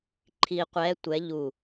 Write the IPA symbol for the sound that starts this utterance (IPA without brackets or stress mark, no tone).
ǃʰ